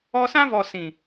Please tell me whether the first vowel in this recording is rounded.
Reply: yes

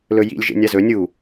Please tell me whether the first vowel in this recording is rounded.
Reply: yes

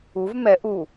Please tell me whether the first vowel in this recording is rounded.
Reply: yes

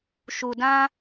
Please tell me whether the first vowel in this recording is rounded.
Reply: yes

